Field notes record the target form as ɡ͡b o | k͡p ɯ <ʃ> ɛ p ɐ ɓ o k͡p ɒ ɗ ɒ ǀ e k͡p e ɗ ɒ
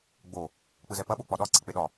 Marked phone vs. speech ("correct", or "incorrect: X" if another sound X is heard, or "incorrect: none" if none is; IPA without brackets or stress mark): incorrect: z